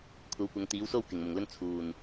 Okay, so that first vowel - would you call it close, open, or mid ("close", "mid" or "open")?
open